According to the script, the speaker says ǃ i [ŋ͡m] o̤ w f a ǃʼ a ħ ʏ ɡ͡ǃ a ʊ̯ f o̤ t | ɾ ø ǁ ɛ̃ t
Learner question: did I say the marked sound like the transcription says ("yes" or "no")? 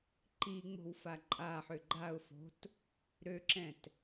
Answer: yes